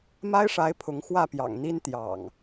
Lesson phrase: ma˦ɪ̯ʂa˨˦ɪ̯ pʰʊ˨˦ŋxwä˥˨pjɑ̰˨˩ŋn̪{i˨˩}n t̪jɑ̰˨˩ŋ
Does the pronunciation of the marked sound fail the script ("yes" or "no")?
yes